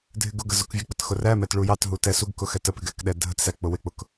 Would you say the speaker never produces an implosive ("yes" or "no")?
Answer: no